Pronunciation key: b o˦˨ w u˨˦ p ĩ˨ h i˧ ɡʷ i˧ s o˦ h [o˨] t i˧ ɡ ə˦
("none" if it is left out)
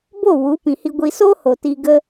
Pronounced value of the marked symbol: o˨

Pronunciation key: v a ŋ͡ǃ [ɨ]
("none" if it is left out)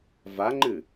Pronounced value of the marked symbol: ɨ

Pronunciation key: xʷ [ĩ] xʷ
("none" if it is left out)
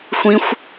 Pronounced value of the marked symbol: ĩ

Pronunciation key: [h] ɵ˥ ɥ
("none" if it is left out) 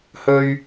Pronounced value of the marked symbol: h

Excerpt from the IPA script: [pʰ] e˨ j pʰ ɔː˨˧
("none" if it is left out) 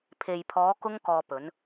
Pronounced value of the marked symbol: pʰ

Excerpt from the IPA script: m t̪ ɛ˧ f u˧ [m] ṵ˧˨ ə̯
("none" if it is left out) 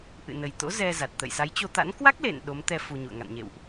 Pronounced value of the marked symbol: ɲ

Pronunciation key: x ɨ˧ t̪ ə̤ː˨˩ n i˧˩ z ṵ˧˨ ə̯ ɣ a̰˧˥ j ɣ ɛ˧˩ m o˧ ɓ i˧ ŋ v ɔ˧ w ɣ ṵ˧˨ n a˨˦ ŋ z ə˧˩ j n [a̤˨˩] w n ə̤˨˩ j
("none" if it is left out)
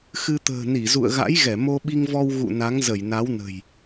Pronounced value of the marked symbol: a˨˦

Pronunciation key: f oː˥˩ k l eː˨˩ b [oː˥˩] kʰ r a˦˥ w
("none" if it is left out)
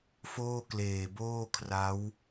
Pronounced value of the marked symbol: oː˥˩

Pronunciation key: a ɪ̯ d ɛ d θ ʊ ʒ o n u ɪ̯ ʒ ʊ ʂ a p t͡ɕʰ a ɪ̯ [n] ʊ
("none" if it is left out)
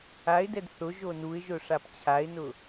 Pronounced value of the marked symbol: n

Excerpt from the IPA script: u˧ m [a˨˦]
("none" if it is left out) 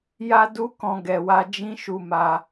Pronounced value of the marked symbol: a˧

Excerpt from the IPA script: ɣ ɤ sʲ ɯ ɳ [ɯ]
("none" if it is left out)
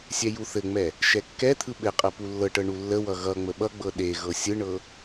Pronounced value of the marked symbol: ɤ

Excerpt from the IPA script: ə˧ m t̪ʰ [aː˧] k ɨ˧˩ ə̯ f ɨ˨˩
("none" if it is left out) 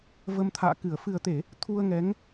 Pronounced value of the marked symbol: a̰ː˧˨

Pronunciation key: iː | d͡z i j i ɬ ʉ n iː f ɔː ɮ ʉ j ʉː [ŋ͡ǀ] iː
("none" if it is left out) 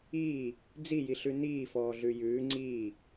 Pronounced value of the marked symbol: ŋ͡ǀ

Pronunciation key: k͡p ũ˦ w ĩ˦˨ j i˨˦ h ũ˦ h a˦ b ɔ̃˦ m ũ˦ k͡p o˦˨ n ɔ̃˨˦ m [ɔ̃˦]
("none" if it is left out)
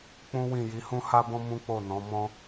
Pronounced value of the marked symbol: ɔ̃˦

